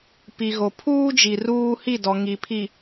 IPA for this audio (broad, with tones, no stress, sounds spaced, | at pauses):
p i˨ ɣ o˨ pʰ uː˦ d͡ʒ i˨ r uː˦ h i˦˨ d ɔ˨ ŋ i˨ pʰ i˨